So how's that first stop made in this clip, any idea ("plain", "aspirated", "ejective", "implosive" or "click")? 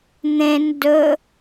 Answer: plain